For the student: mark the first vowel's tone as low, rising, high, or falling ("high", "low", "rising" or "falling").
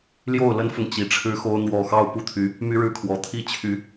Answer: falling